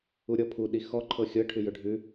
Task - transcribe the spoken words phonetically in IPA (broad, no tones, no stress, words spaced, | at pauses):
uɾʲɔpʰu ɗixɔǃʰɤ xʲɤʈʰʉ jɵɖʱʉ